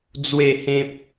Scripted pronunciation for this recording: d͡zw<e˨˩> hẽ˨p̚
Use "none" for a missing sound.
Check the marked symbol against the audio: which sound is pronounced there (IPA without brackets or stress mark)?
e˨˩